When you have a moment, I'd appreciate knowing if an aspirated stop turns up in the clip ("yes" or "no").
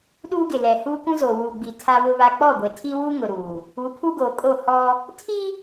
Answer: yes